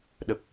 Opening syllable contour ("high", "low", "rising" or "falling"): low